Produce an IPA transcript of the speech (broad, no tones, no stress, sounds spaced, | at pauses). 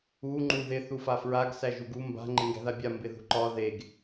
u ŋ͡ǃ u ð ɪ θ u f a f ɹ a ɡ s æ ʒ u ɡ u m b a̤ ŋ͡ǃ ɪ ŋ ɡ æ̤ ð a bʲ a m b ɪ ð ṳ ǃ ɒ ð e ɡ